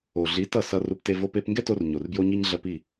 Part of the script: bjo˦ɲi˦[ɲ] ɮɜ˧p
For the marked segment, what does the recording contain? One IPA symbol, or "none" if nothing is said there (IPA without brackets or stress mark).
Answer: ɲ